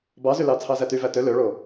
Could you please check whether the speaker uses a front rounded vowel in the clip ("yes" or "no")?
yes